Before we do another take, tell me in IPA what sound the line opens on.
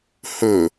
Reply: h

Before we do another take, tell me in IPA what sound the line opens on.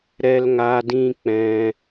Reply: ɾ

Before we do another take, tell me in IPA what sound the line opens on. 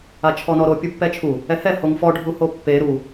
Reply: a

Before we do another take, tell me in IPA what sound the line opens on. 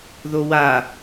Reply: ð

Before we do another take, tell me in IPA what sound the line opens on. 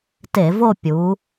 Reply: t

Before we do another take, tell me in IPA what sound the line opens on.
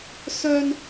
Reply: s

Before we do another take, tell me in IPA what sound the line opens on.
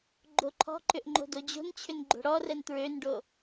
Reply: ɡ͡ǃ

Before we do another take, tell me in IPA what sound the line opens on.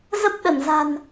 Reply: z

